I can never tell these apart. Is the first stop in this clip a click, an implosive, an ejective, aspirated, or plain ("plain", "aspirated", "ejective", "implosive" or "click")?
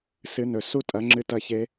ejective